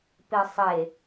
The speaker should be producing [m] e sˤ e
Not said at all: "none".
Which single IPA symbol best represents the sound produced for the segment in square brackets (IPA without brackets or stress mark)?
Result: p